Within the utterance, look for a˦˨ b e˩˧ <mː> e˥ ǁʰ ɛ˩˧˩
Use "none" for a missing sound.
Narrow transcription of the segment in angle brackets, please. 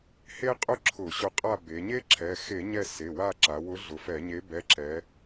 ɲ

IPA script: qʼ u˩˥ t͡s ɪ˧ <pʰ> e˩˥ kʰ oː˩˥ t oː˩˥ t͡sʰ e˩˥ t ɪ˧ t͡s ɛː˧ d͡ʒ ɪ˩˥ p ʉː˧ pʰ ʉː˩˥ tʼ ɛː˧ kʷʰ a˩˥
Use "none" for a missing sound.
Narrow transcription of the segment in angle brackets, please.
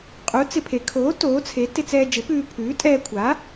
pʰ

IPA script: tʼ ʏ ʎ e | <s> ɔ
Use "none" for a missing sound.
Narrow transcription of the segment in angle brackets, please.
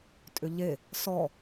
s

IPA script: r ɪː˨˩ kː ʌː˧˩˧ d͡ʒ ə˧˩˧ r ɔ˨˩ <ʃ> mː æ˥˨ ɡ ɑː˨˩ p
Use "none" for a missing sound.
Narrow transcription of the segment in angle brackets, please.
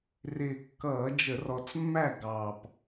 t͡s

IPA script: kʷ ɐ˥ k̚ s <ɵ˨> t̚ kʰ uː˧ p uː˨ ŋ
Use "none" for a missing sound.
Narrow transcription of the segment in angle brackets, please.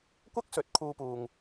ɵ˨˥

